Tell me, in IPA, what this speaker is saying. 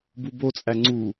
b u b o t͡sʼ æ ŋ͡ǀ u

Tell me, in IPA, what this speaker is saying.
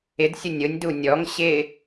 ɪ d sʲ ʊ nʲ ʊ nʲ d u nʲ ɔ ŋ ɕ ɪ

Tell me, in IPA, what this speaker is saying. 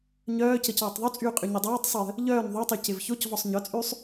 ɲ œː c ə c ɔː tˤ ðˤ u t͡sʼ yː qʼ y ɲ y dˤ oː tˤ sˤ u j ə̤ | ʎ œː n ðˤ u tˤ y c ɪ v ç o c v ɔ sˤ ɲ œ t͡sʼ yː sˤ

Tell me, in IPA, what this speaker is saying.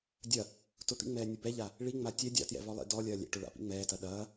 dʲ ɐ | t ʊ t̪ ḭ ŋ͡m ɛː nʲ ʊ b ɛ ʎ a | ɭ i ŋ͡m a tʲ ɛ dʲ a̰ t j ɛ̰ v ɔ lˠ ḭ d ɔ lʲ ɐː lʲ ɛ̰ ʈ ʊ ɭ a̰ p ḭ ŋ͡m ɛː t ɐ ɗ ɐː

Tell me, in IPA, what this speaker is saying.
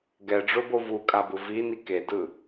ɡ ɛ ɖ͡ʐ o b o v u kʼ a b ɯ v i n i k e d ɯ

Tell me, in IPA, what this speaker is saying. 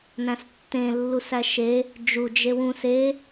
n æ̃ s tː ẽ lː u s æ ʃ e | d͡ʒ u d͡ʒ e w ũ s e

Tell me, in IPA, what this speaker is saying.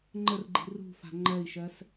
ŋ͡ǃ ə r ɡ͡ǃ i̤ r ṳ f a̤ ŋ͡ǃ ɜ i̯ ʃ ɜ s

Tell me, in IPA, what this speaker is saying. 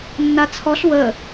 nː a t͡sʰ ɔ ɬ w ə

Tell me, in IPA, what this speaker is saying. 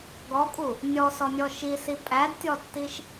ɡ ɔ kʼ u | nʲ ɔ s ɔ nʲ ɔ ʃ i s i pʼ æ d tʲ ɔ tː i ʃ

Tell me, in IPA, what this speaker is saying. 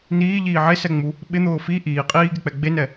n iː ʎ iː ʕ e s ɛ ŋ͡m u | ɓ ɪ n̪ ʊː f i ʔ iː qʼ iː ɡ e k͡p ɛ ɡ͡b e n ɛ

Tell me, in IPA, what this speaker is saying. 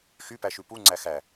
x y p æ ʃ ʉ p u ŋ͡ǀ æ x æ

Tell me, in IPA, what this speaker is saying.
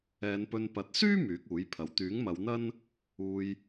ɛː˨˧ n p ɵ˧ n p ɐ˨ t̚ s yː˥ m yː˨˥ k̚ uː˨˥ j pʰ ɐ˨ w t̪ yː˨˥ ŋ m ɐ˨˧ w n̪ ɐ˥ n | uː˧ j

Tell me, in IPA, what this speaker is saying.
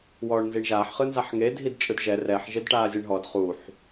w ɔː ɳ n z i ɳ ʒ aː ħ χ ɯ n z a ħ ŋ e dʱ i d t͡ʃʼ ɯ d ʒ ɛ r ɛ ħ ʒ e d ʈ aː zʲ e ɳ ɦ ɔ d χ u ħ

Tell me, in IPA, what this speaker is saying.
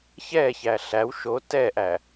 ç ɛ ç æ ɬ æ w ʃ o t ɛ ʔ æ

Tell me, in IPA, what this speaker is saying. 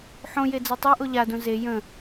ħ õ j e d͡z ɜ tˤ a ʔ o ʎ a d õ z e j ə̃

